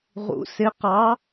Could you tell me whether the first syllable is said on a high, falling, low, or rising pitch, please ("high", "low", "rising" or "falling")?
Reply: rising